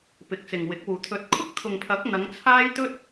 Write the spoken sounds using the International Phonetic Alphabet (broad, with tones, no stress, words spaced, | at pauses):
pɪ˨k̚t͡sɪ˨ŋwɪ˨˥k̚wuː˨ t̪ʰɵ˨˥t̚kʰʊ˥k̚t̪ʰʊ˨ŋpʰɐ˨˥k̚ n̪ɐ˨˧ŋt͡sʰaː˥jt̪ɵ˥t̚